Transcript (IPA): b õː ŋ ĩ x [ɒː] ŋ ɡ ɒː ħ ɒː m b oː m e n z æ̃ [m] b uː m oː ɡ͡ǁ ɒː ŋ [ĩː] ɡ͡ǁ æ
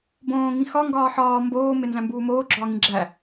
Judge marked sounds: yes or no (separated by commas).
no, yes, no